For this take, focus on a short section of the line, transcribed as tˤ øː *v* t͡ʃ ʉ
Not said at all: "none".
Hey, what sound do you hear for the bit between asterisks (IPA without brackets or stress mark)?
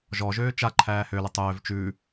v